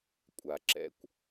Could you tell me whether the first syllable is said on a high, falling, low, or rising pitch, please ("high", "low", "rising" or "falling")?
low